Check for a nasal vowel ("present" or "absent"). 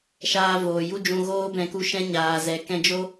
present